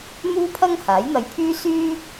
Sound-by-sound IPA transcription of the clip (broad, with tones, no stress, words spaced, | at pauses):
n̪uː˥pʰɐ˥ŋ haː˨˥jn̪ɐ˧jpʰyː˥ syː˥